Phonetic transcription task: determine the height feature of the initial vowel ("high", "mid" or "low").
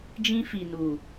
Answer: high